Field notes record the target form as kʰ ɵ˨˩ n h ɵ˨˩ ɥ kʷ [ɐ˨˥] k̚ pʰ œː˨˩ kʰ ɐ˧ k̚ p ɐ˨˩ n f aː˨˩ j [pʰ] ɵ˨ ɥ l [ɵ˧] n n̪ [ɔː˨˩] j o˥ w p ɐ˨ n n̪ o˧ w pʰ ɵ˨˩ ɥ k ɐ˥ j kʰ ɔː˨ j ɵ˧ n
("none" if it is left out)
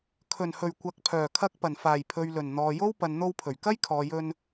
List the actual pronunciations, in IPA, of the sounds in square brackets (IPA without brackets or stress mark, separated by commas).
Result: ɐ˨˥, pʰ, ɵ˨˩, ɔː˨